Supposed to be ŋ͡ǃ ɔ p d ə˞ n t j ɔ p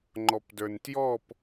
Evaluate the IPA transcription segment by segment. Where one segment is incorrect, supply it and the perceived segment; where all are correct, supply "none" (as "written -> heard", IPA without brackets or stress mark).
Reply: none